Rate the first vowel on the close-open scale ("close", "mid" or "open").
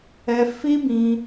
mid